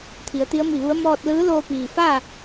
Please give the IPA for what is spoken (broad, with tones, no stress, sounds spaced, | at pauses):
t̪ʰ i˩˧ ə̯ t̪ i˧˥ ə̯ m i˧˩ ʋ u˧˥ ə̯ m ɔː˧ t̚ l ɯː˧˥ l oː˧ p iː˩ f a˥˨